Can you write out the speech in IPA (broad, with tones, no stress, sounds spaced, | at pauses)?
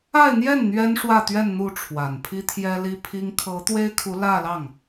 a˥˧ ɪ̯ n̪ j ɛ˥˩ n n̪ ɥ ɛ˥ n ʂ w ä˥˧ t̪ ɥ ɛ˥˧ n n̪ u˥˩ ʈ͡ʂʰ w a˨˩ n pʰ i˥ t̪ʰ j ɛ˥ l i˥ pʰ i˥ ŋ kʰ ɤ˧˥ t̪ w e˥ ɪ̯ kʰ u˧˥ l ä˥˧ l ɑ˥˩ ŋ